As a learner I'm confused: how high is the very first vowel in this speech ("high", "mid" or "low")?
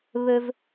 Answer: mid